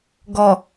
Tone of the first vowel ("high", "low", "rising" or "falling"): low